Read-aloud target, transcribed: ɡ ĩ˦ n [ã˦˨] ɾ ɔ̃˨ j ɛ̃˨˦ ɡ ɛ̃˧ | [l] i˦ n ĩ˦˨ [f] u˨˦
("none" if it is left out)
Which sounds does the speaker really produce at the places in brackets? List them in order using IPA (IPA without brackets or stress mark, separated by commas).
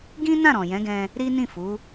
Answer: ã˦˨, ɾ, f